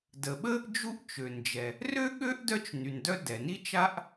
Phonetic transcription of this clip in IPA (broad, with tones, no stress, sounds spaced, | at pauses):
d ə˩ ɓ ə˥ | d͡ʒ u˥ ʔ t͡ʃ ø˩ n d͡ʒ ɛ˩ | r ø˥ ɠ ø˥ ʔ d œ˥ t͡ʃ n y˩ n d œ˥ d ɛ˩ n i˥ t͡ʃ a˥ ʔ